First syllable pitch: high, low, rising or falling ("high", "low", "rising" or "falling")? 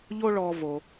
high